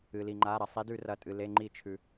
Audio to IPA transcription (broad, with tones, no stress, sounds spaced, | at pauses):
ɨ˩ l i˩ ŋ͡ǃ a˩˧˩ ɾ ɐ˩ sˤ i˨˦ d ʉ˧˩˧ r ɐ˩˧˩ tʼ ɨ˩ l e˩˧˩ ŋ͡ǃ i˧˩˧ t͡ʃʰ ʉ˩